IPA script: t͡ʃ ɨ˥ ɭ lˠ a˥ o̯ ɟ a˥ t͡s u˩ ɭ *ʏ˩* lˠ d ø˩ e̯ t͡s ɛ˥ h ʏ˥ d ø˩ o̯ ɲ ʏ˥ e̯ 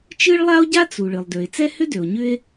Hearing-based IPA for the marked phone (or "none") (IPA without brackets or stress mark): ɨ˩